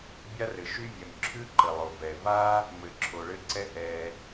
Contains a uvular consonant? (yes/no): no